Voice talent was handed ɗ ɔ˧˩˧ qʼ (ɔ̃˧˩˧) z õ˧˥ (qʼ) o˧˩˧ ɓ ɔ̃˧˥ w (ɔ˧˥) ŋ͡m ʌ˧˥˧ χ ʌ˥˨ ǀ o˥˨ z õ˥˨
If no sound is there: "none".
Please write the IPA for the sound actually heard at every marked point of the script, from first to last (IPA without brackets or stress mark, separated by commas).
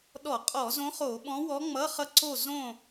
ɔ˧˩˧, χ, ɔ˧˥